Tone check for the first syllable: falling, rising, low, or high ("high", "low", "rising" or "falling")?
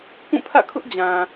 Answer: falling